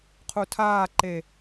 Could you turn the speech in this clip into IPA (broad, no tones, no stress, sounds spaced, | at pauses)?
qʰ u tʰ aː ǃ e